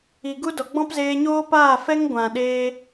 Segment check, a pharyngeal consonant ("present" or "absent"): absent